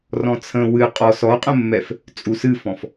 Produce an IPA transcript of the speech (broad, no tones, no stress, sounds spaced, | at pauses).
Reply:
r ɔ̃ t͡sʰ ə̃ w ɨ qʼ ɔ s ɔ qʼ ə̃ mː ɛ f | t͡sʼ u s ɨ f ɔ̃ f